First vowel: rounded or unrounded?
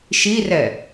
unrounded